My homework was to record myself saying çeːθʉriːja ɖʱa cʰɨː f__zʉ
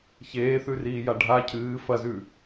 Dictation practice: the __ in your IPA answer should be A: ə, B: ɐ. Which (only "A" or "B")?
B